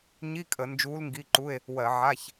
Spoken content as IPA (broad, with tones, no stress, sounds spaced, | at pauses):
ɲ i˧˥˧ kʼ ə˧˩˧ n d͡ʒ uː˧˥ l ŋ ɡ i˧˥˧ ǃ u˧˥˧ e̯ | w ɜ˧˩˧ ʕ a˧˥˧ ç